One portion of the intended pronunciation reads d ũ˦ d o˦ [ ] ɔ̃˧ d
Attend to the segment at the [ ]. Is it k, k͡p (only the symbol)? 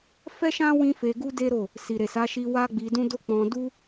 k͡p